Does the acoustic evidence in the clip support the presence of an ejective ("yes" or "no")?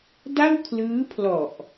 no